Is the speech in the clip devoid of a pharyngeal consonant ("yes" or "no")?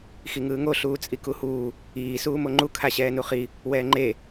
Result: yes